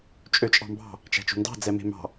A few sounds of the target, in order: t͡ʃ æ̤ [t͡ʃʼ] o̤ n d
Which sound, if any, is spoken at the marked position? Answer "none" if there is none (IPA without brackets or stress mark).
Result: t͡ʃ